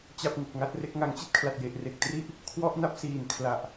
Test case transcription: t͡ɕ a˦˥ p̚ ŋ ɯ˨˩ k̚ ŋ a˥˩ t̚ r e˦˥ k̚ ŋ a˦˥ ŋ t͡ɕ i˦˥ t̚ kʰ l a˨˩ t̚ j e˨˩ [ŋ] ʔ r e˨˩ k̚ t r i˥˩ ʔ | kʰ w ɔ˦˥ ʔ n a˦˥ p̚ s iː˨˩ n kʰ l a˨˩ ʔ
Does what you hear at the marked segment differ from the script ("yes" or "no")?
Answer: yes